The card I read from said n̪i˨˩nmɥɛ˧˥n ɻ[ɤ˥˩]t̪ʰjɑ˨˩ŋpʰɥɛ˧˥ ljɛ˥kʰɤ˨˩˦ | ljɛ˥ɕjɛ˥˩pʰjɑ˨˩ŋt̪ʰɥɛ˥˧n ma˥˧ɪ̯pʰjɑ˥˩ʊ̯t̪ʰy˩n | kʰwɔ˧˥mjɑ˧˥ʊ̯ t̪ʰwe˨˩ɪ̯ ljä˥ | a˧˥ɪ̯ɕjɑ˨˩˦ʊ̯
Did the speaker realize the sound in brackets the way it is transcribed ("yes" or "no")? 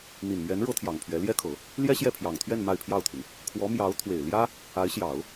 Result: no